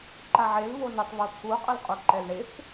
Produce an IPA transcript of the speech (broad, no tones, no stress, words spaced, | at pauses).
ǃaʕel βonʏtˤ βot̪ʰu qʼəlqʼuǃɛlɳef